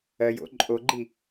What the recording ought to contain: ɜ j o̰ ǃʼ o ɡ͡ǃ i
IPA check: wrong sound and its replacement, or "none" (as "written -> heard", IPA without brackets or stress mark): none